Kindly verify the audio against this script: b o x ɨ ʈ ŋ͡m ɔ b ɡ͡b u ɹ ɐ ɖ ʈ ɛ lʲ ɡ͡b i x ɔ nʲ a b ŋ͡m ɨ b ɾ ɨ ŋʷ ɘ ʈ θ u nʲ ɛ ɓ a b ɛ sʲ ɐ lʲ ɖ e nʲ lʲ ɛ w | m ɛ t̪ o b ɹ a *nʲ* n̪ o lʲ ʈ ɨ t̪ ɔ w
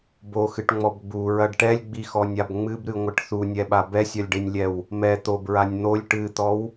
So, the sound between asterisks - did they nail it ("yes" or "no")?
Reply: yes